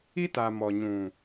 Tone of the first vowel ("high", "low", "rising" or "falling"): high